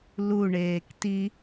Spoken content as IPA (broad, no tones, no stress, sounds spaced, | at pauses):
l u ɳ eː k t i